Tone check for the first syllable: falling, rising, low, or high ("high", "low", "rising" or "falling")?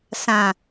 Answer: low